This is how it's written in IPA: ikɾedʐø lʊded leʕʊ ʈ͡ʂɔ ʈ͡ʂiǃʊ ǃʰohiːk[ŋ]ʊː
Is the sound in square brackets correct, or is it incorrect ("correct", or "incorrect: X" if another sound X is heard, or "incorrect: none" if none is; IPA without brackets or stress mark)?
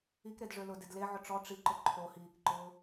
incorrect: ǃ